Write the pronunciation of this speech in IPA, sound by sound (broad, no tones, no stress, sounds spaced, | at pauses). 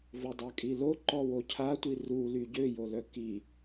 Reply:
v o dˤ a kʼ i l o ǃ ɔ w o cʰ a tʷ i r u l y ɟ ø j o l œ k i